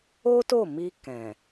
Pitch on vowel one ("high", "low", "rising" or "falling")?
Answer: high